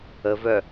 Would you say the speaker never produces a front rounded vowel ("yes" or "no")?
no